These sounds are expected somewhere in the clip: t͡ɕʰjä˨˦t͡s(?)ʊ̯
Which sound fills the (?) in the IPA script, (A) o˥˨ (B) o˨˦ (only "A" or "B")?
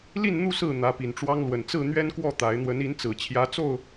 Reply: A